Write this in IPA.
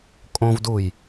kʼ õ v d u j

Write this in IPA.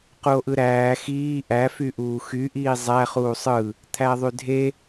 q u o̯ ʔ ɯ ɾ æː x iː ʔ æ f y ʔ uː x y ʔ iː zˤ æ χ uː sˤ ɯ | t̪ʰ æ ðˤ y dʱ e

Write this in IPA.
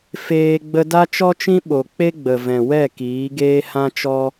f eː˧ ɡ͡b ə˧ d a˦ t͡ʃ ɔ˦ t͡ʃ ĩ˦ ɓ o˨ k͡p e˦ ɡ͡b ə˨ v ɛ̃˨ w ɛ˦˨ k iː˨˦ ɡ eː˦ h ã˦ t͡ʃ ɔ˦

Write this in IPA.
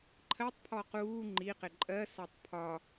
ǃʰ ɜ tˤ pʰ ɔ q uː ŋ͡ǃ i q ɪ ǃʼ ɜ s ɒ tˤ pʰ ɒ

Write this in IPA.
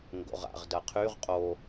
ŋ ɡ o̰ ʁ a̰ ʁ d ɐ qʰ y ʁ qʼ o

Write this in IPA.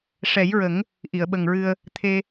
ʂ ɛ˨˩˦ j ɹ ə˨˩˦ ŋ | ʔ i˨˩˨ ə̯ ɓ ə˨˩ ŋ ɹ ɨ˧ ə̯ | t̪ʰ e˧

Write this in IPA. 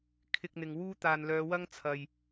kʰ ɪ˧ k̚ n̪ ɪ˨ ŋ w uː˥ t̪ aː˨ n l œː˨˧ w ɐ˥ ŋ t͡sʰ ɐ˨ j

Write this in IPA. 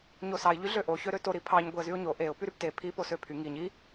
ɲ o s ɑ ɪ̯ ʎ y ɮ ø ʔ o ç ø ɾ ø t o ɾ i pʰ ɑ ɲ ɡʷ i ə̯ z y ʊ̯ ɲ o ʔ e ʊ̯ p y ɾ y p t e pʰ i p o s ø pʰ y ŋ i ɲ i

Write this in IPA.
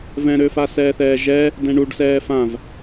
v ɛ̃ ɾ ø f a s ɛː θ ɛː ʒ ɛ | d ɛ̃ ɳ u ɖ s ɛː f ã v

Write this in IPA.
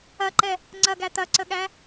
ɐ ǃ ɛ | ŋ͡ǀ ɐ ɡ æ t̪ ɐ ǀ ə ɠ æ

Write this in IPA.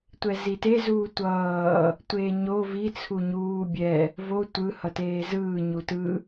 tʷ ɛ z i t e z uː tʷ ʌː | tʷ eː ɲ o v i t͡sʰ u ɲ uː bʲ ɛ | v o tʷ ɯ h ʌ t eː z ɯː ɲ u t ɯ

